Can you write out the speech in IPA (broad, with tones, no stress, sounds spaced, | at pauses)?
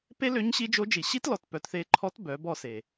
p e˥ l ø˧˥ ɲ ɕ i˧˥ d͡ʒ o˧˥ d͡ʒ i˩ ɕ i˥ t l ɔ˩˧ t p œ˩˧ t θ e˧ ǃʰ ɔ˧˥ t b œ˩˧ b ɔ˧ s e˩